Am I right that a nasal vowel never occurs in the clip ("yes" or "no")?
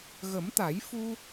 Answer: yes